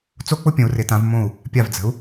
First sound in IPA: t͡s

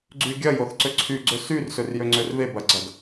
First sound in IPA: ɡ͡ǀ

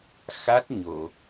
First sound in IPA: x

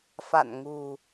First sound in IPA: f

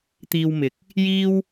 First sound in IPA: t̪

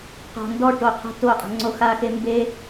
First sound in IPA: q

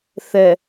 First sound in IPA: θ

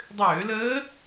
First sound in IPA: dˤ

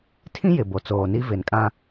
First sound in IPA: tʰ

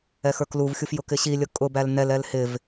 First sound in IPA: ɛ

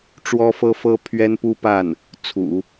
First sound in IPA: ʈ͡ʂ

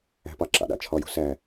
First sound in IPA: æ̤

